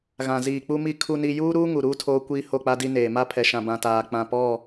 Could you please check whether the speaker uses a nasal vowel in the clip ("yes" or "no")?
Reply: yes